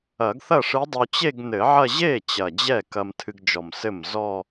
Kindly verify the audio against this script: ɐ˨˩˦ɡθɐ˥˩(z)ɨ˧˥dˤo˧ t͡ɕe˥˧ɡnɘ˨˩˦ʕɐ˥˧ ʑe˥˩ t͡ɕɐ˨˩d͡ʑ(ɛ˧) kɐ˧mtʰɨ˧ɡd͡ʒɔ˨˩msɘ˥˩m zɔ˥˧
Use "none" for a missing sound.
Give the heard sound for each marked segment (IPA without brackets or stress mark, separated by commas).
ʂ, ɛ˥˩